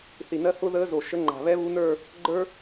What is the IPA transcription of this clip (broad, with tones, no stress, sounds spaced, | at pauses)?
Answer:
θ i˨˩ n ɜ˧˥ h ʊ˥ ð əː˧˥ z o˨˩ ʃ ə˧˥ ŋ͡ǃ a̤˨˩ β ɛ˥ β u˧˥ n ə˞˥˧ | ɡ͡ǃ ə˞˥